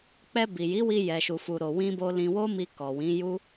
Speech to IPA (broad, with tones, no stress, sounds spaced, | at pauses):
k͡p ɛ˧ b i˨ j i˨˦ w i˧ j ɛ˧ ʃ u˧ f u˧ ɾ o˨ w ĩ˧ b o˧ l ĩ˧ w o˦ m i˧ k ɔ˨ w ĩ˨˦ j u˦